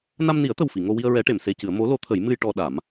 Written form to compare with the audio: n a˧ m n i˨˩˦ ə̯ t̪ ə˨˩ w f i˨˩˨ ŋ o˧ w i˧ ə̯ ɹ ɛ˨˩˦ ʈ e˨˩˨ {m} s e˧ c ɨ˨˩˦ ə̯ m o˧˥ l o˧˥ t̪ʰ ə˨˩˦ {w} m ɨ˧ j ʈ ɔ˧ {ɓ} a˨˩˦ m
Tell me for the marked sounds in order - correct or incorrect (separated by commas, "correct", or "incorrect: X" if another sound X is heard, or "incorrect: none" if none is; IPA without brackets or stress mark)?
correct, incorrect: j, incorrect: ɗ